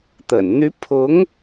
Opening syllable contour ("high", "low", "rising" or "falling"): low